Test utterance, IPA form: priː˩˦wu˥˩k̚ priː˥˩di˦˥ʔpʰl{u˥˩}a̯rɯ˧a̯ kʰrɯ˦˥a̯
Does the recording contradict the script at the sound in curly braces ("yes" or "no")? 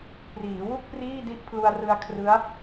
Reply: yes